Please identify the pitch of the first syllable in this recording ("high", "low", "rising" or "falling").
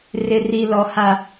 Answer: low